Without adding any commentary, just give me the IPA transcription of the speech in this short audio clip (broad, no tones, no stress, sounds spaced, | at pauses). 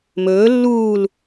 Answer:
m ɵː lː uː l